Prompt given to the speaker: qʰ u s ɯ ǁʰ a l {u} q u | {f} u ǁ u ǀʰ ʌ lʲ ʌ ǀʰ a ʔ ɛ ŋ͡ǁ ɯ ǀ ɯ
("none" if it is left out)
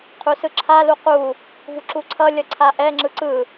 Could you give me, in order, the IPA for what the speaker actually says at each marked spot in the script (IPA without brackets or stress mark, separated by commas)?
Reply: u, v